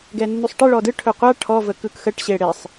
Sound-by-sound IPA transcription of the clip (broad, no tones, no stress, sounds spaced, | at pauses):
ɡ ɛ nː u sˤ ʈ e ɭ ɔ d ɯ ʈʰ ɵ qʷ a ʈʰ ɔ v ə k ɯ k x ə ʈ ɕ e ɽ e sˤ